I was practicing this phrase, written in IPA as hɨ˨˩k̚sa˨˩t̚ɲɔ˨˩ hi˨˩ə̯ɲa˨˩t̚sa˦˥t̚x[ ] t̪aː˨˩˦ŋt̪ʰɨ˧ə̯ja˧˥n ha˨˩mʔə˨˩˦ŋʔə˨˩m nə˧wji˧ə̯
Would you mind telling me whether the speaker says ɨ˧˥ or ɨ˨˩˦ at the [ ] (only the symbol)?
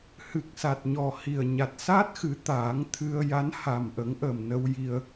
ɨ˨˩˦